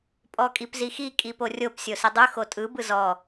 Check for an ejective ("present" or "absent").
present